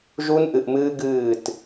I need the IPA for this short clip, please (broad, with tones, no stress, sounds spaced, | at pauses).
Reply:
ʒ u˦ n ʔ ɨ˨ ʔ m ɨː˦ ɡ ɨː˦˨ t